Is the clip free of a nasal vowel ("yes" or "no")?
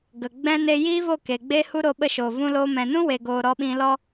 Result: no